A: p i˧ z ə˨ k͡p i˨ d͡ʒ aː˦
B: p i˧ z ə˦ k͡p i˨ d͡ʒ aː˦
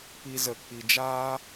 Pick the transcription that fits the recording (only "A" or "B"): A